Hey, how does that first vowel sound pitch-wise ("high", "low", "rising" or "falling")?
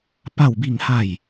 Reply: falling